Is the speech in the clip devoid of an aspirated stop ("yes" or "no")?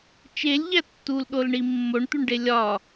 yes